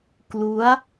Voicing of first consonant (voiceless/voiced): voiceless